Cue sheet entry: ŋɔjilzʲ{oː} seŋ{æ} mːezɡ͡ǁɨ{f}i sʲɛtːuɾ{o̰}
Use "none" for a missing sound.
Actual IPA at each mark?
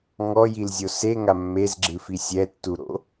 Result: o, a, f, o̰

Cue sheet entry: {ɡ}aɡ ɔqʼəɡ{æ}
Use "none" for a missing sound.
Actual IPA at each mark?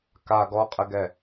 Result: k, ɛ

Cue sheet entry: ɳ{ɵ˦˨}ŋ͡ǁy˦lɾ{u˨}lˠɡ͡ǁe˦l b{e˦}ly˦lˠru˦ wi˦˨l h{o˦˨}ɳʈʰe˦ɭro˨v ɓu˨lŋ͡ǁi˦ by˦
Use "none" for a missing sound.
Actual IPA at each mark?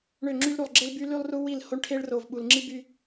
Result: ø˦˨, u˨, y˦, o˦

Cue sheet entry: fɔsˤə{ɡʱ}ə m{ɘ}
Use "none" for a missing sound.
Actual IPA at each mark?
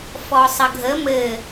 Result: ɡʱ, ɘ

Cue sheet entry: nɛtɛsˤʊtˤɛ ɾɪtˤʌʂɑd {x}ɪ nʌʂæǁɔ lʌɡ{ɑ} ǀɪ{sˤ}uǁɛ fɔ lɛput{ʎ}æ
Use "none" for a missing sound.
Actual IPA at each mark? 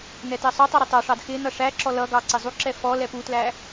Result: x, ɑ, zˤ, l

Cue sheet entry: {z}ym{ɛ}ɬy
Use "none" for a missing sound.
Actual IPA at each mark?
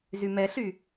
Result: z, ɛ

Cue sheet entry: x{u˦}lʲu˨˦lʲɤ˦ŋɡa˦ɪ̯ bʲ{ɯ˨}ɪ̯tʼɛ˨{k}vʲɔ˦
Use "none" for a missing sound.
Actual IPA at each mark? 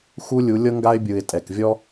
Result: u˦, ɯ˨, k

